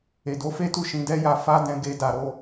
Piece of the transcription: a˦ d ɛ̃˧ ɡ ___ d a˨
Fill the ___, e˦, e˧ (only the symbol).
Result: e˧